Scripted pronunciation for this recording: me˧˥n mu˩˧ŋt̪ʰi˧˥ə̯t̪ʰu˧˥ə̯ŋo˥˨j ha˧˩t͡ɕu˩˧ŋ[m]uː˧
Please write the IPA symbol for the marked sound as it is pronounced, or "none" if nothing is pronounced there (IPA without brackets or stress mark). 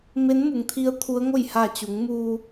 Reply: m